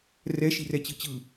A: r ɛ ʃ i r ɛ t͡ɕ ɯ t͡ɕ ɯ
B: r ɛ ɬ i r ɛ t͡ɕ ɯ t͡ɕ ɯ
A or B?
A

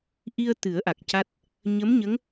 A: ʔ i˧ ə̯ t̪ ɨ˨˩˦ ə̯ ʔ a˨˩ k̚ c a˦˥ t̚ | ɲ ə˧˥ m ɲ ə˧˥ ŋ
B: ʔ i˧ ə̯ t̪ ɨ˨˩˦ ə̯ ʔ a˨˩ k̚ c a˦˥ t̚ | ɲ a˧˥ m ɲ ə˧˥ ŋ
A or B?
A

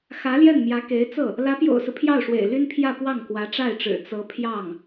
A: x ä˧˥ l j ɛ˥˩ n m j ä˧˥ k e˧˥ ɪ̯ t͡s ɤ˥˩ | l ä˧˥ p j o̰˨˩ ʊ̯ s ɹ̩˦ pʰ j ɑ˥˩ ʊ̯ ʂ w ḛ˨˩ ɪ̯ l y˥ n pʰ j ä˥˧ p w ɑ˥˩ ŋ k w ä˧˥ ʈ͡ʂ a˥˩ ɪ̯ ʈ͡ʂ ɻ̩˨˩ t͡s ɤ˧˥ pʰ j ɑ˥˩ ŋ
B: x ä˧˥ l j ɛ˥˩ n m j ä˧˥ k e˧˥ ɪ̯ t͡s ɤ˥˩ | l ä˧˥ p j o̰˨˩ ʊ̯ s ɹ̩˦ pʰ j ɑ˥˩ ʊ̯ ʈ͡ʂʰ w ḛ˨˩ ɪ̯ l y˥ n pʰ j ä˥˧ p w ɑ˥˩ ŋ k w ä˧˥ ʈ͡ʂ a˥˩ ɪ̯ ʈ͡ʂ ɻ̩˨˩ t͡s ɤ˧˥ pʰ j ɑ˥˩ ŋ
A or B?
A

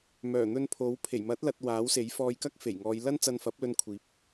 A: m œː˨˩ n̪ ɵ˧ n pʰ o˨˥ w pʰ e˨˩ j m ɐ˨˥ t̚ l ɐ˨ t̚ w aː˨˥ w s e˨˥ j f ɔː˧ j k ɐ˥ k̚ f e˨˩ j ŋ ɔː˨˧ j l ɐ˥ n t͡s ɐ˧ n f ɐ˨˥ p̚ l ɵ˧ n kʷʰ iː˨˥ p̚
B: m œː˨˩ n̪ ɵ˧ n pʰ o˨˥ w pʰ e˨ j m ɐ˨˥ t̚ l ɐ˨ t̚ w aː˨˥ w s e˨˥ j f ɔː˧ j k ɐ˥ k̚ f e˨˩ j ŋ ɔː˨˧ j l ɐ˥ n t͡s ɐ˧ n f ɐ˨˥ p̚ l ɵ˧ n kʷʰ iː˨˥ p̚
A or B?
A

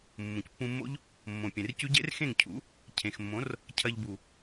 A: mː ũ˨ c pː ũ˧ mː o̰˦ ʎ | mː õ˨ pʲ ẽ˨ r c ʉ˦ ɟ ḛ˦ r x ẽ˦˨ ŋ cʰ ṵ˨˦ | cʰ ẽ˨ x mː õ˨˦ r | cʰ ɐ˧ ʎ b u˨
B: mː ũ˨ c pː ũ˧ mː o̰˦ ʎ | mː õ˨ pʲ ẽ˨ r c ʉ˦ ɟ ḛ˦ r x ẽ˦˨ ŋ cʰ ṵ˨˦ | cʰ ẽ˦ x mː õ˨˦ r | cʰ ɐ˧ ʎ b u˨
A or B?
A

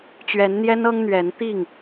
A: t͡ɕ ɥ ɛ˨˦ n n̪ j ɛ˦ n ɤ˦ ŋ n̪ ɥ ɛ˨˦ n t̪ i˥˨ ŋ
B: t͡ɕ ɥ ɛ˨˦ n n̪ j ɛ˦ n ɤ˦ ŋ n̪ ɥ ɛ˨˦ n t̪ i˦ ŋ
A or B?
A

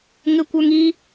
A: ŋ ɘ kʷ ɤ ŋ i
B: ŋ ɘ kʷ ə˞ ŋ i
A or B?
B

